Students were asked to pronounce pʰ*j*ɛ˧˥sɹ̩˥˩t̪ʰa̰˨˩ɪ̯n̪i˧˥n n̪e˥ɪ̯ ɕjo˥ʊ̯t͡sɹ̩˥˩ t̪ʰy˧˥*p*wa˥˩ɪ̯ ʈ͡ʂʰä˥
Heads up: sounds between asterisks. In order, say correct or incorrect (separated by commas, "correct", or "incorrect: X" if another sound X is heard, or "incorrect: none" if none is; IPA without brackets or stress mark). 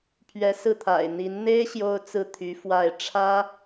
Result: incorrect: ɥ, incorrect: f